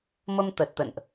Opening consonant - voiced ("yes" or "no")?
yes